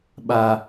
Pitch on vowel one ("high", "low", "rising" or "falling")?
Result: high